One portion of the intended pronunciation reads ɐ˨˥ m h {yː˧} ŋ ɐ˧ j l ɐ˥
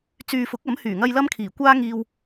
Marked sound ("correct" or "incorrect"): incorrect